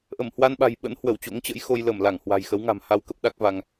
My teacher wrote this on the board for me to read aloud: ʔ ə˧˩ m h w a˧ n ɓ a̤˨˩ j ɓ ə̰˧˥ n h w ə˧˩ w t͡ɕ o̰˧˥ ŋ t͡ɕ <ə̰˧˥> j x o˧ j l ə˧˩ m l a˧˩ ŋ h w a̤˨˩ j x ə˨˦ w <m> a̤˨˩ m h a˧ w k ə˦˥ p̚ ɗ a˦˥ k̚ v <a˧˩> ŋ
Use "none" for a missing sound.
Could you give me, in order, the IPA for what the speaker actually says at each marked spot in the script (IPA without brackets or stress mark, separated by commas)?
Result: ə̰˧˥, ŋ, a˧